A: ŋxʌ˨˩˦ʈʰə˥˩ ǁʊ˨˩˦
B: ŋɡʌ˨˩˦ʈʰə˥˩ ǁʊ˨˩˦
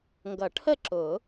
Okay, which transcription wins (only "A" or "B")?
B